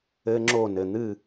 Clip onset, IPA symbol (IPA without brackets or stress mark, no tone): ɘ